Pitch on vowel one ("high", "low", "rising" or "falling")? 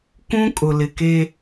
high